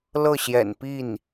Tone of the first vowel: falling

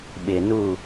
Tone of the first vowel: low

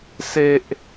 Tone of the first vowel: high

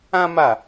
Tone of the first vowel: high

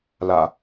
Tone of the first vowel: low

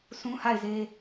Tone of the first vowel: high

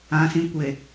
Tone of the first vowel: low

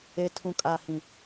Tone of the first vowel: low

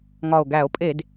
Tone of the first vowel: low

